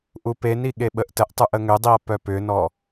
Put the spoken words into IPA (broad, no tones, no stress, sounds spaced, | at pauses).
ʔ u p e n i ɠ e ɓ ə ʔ t ə ʔ tˤ u ʔ ə ŋ ʏ dˤ i ɐ̯ p œ p ʏ n ɔ